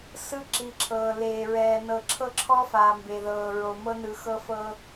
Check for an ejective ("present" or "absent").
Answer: absent